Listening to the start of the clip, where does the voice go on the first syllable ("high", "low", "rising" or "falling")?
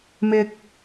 low